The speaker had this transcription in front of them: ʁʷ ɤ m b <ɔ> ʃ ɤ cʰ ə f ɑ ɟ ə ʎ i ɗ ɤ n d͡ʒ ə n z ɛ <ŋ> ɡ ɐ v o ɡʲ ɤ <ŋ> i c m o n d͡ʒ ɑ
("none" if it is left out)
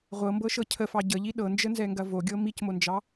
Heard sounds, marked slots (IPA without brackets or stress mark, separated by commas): ɤ, ŋ, m